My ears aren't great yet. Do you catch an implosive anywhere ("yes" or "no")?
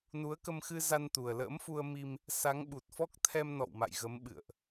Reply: yes